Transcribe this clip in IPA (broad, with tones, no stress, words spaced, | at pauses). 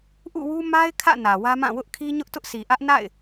ʔṵ˦˨wu˦ ma˦ɪ̯kʰä̰˦˨ nä˨wä˦mã˦˨ wʊ˦ʔkʰi˦ ɲʊ˦ʔtʊ˦ʔsi˨ ʔä˦ʔna̰˦˨ɪ̯